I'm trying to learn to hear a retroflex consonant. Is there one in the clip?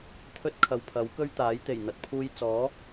no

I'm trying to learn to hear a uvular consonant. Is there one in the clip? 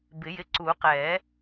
yes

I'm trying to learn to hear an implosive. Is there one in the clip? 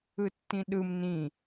yes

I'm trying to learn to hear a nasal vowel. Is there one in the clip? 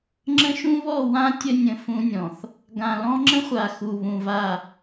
yes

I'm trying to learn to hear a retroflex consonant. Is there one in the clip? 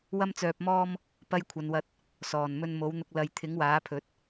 no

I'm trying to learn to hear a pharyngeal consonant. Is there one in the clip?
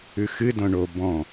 no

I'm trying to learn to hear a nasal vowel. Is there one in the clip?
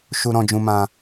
yes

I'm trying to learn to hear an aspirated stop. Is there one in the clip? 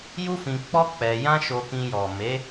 no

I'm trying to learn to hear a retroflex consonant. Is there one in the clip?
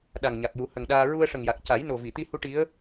yes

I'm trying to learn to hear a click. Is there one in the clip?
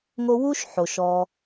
no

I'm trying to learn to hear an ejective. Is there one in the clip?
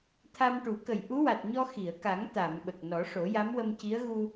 no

